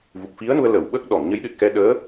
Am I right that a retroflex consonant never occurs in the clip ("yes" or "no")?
yes